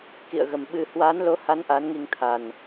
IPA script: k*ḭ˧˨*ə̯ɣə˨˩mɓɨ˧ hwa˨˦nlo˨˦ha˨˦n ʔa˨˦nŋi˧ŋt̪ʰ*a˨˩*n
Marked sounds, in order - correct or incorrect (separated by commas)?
correct, correct